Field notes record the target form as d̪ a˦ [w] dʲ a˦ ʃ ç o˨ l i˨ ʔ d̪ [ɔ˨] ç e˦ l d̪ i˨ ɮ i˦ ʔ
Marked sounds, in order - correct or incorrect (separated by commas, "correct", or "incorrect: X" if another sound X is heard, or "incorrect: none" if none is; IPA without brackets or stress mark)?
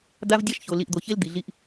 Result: incorrect: v, incorrect: o˨